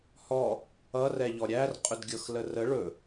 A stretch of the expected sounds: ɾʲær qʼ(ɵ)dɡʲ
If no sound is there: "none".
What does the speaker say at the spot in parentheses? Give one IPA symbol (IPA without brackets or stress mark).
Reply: ɵ